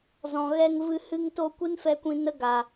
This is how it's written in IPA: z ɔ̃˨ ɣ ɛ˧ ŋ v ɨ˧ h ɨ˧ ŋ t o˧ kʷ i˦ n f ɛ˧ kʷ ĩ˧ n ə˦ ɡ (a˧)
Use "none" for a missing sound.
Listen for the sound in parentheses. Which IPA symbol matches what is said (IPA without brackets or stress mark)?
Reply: a˨